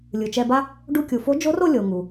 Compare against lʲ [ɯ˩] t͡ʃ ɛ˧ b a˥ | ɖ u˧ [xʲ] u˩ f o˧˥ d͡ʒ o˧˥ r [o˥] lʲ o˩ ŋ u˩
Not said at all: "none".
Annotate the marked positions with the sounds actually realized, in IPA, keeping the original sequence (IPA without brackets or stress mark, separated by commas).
ɯ˩, kʲ, o˧